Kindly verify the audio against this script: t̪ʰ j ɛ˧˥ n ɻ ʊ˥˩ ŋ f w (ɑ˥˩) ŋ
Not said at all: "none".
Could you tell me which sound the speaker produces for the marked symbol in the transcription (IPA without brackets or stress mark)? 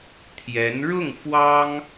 ɑ˥